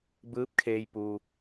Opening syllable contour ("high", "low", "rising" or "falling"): rising